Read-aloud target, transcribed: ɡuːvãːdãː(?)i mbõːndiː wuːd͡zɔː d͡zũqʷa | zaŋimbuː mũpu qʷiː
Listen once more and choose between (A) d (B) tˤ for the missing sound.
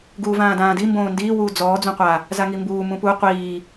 A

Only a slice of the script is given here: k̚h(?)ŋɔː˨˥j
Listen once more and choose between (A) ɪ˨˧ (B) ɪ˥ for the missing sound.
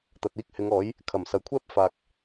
A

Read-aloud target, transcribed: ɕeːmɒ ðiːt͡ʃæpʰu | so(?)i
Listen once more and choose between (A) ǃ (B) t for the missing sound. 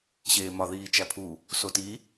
B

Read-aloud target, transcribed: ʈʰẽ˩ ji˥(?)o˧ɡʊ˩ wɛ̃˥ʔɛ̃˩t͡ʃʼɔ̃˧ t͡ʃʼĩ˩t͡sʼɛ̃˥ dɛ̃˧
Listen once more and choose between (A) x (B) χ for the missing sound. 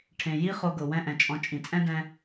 B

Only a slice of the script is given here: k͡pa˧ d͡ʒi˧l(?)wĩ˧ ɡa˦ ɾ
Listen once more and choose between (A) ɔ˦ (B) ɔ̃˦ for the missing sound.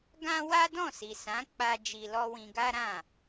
A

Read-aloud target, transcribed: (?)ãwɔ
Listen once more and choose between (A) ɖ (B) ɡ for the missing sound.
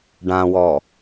A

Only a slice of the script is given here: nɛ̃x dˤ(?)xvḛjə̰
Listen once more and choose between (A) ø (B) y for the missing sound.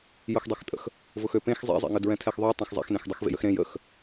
B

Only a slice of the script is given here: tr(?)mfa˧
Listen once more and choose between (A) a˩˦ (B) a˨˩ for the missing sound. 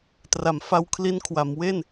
A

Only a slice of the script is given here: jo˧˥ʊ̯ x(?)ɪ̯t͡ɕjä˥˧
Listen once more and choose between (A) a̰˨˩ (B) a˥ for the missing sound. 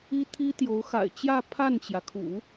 A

